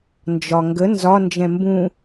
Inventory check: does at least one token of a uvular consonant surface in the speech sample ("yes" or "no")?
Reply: no